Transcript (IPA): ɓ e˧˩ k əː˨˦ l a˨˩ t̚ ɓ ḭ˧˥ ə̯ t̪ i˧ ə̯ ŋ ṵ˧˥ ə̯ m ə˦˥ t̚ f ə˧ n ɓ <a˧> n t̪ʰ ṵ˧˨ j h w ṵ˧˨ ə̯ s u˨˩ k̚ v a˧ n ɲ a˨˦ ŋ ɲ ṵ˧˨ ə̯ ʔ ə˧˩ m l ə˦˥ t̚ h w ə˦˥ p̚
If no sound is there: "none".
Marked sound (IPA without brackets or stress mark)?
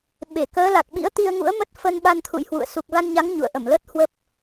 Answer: a˧